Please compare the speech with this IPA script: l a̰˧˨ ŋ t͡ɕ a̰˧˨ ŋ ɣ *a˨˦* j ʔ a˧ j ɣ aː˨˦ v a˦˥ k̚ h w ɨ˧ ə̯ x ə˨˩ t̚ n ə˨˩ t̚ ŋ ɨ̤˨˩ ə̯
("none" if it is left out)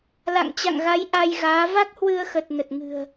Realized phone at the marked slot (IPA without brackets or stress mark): a˨˦